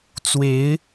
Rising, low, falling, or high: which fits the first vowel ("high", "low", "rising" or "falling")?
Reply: rising